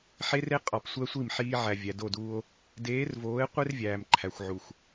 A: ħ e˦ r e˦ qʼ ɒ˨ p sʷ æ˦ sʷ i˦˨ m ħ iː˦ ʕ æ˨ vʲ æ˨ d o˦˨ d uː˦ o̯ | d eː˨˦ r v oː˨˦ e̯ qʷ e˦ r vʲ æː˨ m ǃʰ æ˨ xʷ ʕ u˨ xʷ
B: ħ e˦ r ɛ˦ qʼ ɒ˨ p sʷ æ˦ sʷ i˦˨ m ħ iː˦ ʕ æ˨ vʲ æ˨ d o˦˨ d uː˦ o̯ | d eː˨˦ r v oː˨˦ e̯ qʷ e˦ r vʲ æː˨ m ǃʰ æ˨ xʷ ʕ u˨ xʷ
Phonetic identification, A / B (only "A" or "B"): A